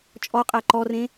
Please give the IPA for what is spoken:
t͡ʃʼɔ qʼæǃɔrẽ

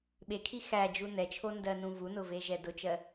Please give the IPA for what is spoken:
ɓekʰi xæd͡ʒu nɛt͡ʃʰo ndɜnũvunʊ veʒɛdʊt͡ʃɜ

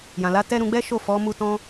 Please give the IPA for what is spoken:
jã˨la˨˦ tɛ˧ ɾũ˧ɡ͡bɛ˦ʃo˦˨ fɔ˨˦mu˧tɔ̃˧

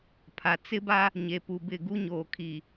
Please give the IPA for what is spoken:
pʰa˨ t͡sɪ˦ba˦ | ɲe˨pu˨bɪ˦˨ɡu˦ ɲoː˨kʰiː˨

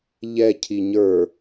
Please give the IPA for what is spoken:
ʎɛ cʰiɲə˞

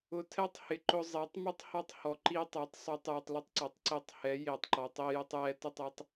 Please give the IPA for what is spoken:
ʊ˨tʰɛ˦tˤhɪ˨ǃʊ˧ zˤe˨˦tˤ mu˦tˤhɔ˦tˤ hɔ˨ǃi˦ tˤɛ˨˦tˤ sˤu˨˦tˤju˨tˤlʊ˦tˤ ǀɔ˨tˤǀe˧tˤ hɛ˨˦ je˨tˤǃɔ˨tˤ i˧jʊ˧tˤjɛ˧tʊ˦˨tˤ ɛ˦tˤ

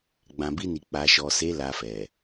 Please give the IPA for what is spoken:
ɡ͡bã˨bi˧ni˨ k͡pa˨ʃɔ˨se˨˦ la˧fɛ˨

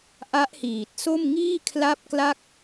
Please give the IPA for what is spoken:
ʔa˦˥ʔhiː˨˩t̚so˥˩m ŋiː˥˩kʰla˦˥p̚kla˦˥k̚

